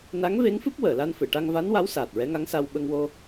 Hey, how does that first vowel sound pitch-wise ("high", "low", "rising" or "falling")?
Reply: rising